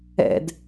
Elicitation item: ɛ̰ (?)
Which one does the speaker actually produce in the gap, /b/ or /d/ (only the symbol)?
d